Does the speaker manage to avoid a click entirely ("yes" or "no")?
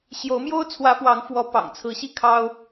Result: yes